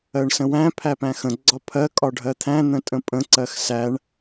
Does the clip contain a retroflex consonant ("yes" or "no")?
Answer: yes